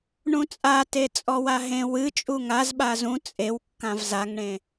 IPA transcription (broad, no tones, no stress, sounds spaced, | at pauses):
ɳ ũ t͡sʼ a t e t͡sʼ ɔ w a ɦ ẽ w ɨ t͡ʃʼ u ŋ a z ɓ a z ũ t͡sʼ e w kː ã v z a ŋ ɳ ẽ